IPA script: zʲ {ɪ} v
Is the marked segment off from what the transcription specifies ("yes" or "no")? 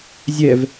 yes